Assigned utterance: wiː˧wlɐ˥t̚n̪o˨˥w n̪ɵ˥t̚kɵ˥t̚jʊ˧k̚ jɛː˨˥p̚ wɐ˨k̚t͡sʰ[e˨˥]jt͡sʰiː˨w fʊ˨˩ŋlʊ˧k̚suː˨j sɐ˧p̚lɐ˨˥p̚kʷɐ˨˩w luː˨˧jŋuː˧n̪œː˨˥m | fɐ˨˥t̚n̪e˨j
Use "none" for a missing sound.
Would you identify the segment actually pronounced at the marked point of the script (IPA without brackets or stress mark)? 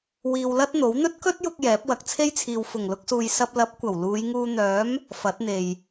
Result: e˥